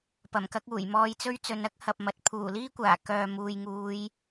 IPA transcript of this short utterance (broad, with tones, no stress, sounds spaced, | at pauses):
p ɐ˨˩ m k ɐ˧ k̚ uː˨˩ j m ɔː˧ j t͡s ɵ˥ ɥ t͡s ɵ˨˧ n ɐ˥ k̚ h ɐ˨ p̚ m ɐ˨ t̚ pʰ uː˨˩ l iː˥ kʷ aː˨˩ k œː˨ m uː˨ j ŋ uː˨˧ j